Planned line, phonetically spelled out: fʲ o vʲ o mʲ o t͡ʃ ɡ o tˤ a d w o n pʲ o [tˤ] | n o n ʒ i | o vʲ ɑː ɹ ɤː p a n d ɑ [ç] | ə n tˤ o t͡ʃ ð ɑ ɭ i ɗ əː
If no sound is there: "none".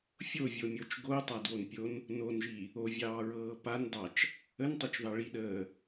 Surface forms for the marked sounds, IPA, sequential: n, t͡ʃ

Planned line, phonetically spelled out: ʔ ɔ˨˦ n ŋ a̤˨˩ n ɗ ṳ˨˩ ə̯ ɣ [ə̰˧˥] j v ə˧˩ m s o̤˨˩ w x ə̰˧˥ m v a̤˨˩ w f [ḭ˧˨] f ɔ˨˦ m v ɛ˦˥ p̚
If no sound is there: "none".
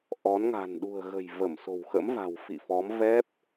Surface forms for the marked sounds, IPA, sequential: ə̤˨˩, ḭ˧˨

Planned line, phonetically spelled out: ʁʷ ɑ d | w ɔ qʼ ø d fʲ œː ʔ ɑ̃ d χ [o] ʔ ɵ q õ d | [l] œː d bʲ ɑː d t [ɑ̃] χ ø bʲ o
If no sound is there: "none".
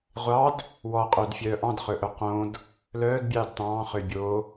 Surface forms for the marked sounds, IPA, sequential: ɵ, l, ɑ̃ː

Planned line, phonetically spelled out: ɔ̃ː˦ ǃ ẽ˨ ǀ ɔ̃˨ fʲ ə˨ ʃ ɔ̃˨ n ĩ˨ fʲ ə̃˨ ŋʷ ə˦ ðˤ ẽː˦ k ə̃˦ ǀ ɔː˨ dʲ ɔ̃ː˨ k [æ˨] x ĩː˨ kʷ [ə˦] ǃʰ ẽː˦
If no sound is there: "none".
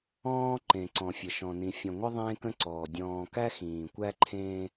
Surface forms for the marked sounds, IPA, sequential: æ˦, æ˦

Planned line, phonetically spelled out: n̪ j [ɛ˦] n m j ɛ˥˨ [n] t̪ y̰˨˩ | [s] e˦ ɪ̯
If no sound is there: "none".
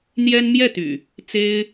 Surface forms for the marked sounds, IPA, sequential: ɛ˦, none, t͡s

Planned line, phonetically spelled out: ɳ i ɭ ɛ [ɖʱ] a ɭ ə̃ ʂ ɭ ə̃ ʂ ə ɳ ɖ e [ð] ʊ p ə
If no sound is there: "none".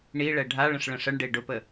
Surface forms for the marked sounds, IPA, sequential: ɖʱ, ɖ

